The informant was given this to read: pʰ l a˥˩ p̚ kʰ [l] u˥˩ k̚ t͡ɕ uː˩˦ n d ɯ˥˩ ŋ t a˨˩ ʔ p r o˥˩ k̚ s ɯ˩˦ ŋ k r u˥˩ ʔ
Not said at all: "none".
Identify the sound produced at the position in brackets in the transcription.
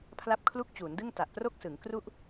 l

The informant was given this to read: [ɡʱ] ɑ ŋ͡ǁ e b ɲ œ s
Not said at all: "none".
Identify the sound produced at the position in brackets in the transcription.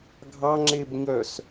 ɡʱ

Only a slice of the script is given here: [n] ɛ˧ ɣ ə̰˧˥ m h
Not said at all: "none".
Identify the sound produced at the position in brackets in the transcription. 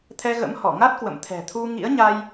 t̪ʰ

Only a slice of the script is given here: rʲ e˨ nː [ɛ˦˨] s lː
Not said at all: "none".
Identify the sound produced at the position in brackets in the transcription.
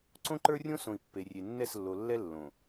ɛ˦˨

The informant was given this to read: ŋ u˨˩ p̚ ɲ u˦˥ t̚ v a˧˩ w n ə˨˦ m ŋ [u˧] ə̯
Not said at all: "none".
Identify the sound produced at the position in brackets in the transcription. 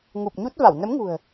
ṳ˨˩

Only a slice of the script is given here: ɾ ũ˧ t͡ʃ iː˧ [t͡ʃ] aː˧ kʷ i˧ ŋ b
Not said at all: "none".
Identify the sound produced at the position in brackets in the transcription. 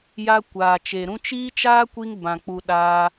t͡ʃ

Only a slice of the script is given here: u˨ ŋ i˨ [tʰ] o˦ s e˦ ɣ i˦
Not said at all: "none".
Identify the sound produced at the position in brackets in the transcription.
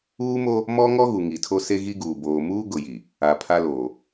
tʰ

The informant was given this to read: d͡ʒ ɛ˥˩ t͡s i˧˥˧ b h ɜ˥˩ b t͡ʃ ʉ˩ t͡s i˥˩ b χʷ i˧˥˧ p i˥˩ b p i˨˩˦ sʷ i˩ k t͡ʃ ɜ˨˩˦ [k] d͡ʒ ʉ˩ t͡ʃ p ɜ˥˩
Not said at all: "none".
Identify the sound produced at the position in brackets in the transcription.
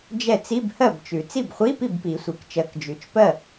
k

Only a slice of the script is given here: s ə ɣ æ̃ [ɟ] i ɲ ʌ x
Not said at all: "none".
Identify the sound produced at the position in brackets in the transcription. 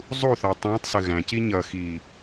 c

